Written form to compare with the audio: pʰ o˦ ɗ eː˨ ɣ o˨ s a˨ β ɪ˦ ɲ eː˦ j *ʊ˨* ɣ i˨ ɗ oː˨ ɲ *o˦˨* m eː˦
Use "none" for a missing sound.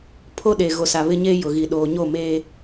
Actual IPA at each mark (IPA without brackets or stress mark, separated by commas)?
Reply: ʊ˨, o˦˨